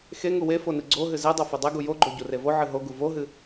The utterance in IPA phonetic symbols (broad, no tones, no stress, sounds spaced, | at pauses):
x e ŋ u w e f o n ɨ ɡ͡ǀ o ɦ ɨ z e dˤ o f e dˤ e ɡ u j o ɡ͡ǃ o ɟ u r e v o ʕ ɨ ɦ o ɡ u v o ɦ ɨ